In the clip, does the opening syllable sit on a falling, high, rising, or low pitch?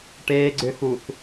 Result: low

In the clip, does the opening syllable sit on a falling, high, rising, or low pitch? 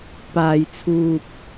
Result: low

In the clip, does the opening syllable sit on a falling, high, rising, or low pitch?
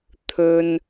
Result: low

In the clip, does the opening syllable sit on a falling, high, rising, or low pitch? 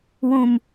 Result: low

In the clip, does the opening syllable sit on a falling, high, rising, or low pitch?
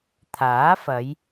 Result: rising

